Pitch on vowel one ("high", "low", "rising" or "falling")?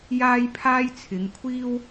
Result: high